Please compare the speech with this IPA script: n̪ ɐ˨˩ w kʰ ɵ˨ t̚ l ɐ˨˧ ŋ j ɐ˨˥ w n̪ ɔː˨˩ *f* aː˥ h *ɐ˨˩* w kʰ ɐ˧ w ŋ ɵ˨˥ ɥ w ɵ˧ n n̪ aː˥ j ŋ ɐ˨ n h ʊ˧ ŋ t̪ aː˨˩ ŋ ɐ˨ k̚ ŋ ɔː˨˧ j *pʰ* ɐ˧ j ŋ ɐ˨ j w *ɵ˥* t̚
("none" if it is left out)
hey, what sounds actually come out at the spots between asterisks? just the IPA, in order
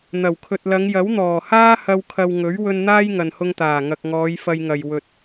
h, ɐ˧, f, ɵ˨

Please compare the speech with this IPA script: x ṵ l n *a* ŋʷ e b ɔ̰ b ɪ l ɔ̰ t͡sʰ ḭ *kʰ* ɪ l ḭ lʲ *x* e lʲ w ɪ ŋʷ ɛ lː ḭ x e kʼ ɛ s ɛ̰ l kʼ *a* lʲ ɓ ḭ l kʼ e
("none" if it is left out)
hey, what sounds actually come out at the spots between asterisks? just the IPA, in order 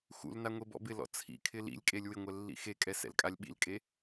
a, kʰ, kʼ, a

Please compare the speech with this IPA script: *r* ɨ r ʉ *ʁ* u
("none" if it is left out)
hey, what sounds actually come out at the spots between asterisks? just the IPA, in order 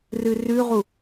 r, ʁ

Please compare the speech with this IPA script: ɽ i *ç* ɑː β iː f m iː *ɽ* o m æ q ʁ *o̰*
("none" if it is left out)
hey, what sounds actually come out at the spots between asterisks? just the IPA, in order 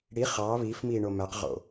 χ, ɳ, o̰

